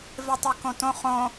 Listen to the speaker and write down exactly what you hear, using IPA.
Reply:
v e tˤ i k õ t õ χ õ

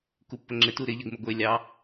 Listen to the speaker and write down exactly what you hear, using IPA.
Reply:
k u pː ə ŋ͡ǁ ɪ t u ɾ ɪ ʎ ə ɡ m ɪ ɡʷ e lʲ ɑ

